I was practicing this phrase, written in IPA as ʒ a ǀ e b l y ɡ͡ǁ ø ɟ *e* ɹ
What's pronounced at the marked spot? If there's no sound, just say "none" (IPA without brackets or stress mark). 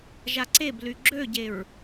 e